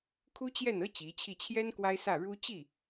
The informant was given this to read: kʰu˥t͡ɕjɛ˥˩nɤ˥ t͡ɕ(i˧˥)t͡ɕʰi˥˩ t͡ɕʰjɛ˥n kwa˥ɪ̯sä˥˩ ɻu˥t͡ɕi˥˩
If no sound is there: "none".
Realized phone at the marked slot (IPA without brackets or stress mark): i˧˥